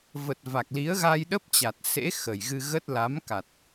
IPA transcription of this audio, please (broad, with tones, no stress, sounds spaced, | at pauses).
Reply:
v ə˨˩ t̚ v a˨˩ k̚ l i˨˦ ə̯ ɣ a˧ j ɗ ə˦˥ p̚ t͡ɕ a˨˩ t̚ s ḛ˧˥ x ə˨˩ j ɣ ɨ˧ ɣ ə˦˥ t̚ l a˨˦ m k a˨˩ t̚